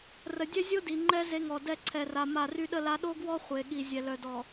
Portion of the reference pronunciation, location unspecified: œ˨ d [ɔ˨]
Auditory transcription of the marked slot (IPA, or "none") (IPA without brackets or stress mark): ɔ˨